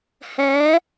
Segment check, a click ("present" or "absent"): absent